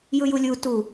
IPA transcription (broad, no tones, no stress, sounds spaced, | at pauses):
j ɯ j u lʲ u t u